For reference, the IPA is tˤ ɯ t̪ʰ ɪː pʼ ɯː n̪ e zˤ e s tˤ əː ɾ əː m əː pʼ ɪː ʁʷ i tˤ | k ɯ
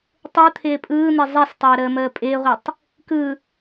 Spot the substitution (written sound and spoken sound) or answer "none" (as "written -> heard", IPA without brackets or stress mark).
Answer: none